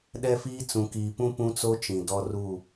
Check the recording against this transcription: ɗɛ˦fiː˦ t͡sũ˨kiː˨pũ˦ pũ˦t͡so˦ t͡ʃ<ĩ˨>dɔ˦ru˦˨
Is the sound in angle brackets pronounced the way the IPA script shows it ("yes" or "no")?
yes